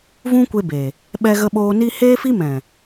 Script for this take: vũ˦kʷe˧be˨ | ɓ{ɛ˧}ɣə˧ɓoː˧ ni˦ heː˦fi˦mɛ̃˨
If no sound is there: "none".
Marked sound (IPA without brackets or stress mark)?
ɛ˧